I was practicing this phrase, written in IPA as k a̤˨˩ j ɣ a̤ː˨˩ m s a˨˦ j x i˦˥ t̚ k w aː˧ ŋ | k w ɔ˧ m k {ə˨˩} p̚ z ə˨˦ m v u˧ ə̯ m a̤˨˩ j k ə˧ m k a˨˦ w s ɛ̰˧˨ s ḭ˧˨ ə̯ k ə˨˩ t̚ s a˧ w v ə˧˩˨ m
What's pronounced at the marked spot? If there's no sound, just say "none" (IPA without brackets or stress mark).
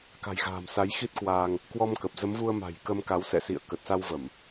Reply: ə˨˩